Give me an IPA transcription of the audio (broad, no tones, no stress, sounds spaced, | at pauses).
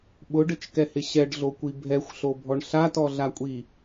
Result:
ɓ ʊ ɖ ɪ t͡ʃ k ɛ h ɪ ɕ ɛ ɖ ɮ o kʷ i bʱ ɛ xʷ ɬ o bʱ ɔ ɳ ɬ a t ɔ ɮ a kʷʼ i